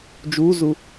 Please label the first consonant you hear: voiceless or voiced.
voiced